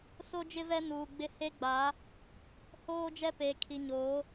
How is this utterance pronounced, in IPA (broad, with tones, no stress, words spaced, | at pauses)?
so˦d͡ʒɪ˦ vɛ˦nuː˨ɡ͡bɪ˦ he˦ɡ͡ba˨˦ | hoː˦d͡ʒɛ˦ peː˨kʰi˨ɲoː˨˦